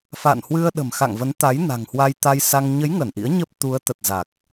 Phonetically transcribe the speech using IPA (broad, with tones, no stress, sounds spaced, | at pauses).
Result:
f a̰˧˨ n h w ɨ˧ ə̯ ɗ ə̤˨˩ m x a̰˧˨ ŋ v ə˨˦ n t̪ a˨˦ j n a̤˨˩ ŋ h w a˧ j t̪ a˧ j s a˧ ŋ ɲ ə˨˦ j ŋ ə˧˩ n ʔ ḭ˧˥ ə̯ ɲ ə˦˥ p̚ t̪ u˨˦ ə̯ t̪ ə˨˩ t̚ z a˨˩ k̚